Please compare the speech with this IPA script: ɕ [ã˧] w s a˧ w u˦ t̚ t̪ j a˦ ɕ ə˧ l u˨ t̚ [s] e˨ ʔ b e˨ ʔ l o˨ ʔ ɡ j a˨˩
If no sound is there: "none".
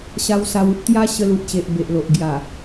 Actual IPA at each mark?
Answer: a˧, ɕ

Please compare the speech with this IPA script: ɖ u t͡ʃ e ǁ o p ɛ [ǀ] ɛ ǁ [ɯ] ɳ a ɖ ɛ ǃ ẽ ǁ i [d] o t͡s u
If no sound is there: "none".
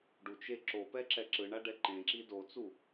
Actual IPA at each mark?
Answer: ǁ, ɯ, d

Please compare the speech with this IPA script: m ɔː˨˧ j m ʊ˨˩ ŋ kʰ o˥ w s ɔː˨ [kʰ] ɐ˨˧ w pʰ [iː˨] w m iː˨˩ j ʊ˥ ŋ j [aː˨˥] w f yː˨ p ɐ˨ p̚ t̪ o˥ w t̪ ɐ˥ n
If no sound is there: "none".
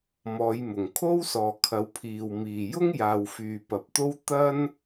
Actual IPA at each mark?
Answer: kʰ, iː˨, aː˨

